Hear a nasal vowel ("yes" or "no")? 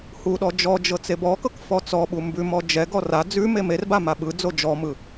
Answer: no